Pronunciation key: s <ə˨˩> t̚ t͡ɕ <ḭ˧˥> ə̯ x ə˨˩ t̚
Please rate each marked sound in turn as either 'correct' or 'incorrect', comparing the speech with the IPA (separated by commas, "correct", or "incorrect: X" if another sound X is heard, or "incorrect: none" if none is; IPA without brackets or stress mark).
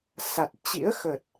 incorrect: a˨˩, correct